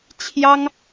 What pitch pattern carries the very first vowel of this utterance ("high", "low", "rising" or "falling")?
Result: high